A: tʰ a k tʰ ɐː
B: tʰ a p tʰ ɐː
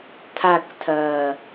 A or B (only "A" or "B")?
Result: A